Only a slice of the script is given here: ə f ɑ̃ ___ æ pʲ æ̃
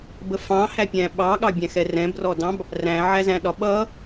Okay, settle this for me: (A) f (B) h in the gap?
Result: B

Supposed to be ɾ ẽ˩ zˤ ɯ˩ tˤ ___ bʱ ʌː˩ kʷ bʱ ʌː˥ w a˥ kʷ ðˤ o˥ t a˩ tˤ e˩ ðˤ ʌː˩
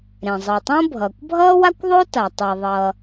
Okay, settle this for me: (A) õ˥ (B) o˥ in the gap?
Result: A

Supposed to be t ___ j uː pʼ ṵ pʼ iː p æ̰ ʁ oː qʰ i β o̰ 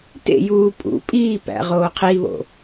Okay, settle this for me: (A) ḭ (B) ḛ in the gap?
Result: B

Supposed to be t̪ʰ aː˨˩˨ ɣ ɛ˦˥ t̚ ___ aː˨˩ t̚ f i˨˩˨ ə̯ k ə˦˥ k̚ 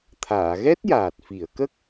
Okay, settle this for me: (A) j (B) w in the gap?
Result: A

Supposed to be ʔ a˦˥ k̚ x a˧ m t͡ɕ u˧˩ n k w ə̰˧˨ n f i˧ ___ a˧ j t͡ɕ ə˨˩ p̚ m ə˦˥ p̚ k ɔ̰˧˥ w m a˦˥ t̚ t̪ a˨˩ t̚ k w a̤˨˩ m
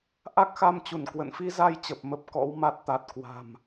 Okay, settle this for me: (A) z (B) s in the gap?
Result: A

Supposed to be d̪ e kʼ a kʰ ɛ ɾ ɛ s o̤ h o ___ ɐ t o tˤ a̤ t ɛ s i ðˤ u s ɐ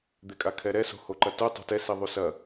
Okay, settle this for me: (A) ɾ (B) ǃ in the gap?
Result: B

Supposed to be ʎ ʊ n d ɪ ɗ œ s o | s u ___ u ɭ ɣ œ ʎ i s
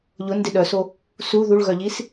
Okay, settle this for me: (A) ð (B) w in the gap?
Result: A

